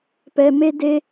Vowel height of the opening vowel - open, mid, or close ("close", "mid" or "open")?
mid